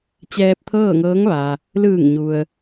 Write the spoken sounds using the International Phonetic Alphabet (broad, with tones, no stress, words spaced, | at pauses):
t͡ɕɛː˧p̚t̪ʰɤː˥˨ŋɤː˧˥ŋ ʋa˩ | lɯː˧˩ŋɲu˩ə̯